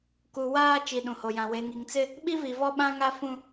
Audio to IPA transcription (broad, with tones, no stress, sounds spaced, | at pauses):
k u˨ w aː˦ t͡ʃ i˨ ɗ ũ˨ h o˨ j ã˨ w e˨ ŋ i˨ ŋ t͡s ɪ˦ | ɓ i˦ v i˨ v ɔ˦ ɓ ã˦ ŋ a˦ f ũ˦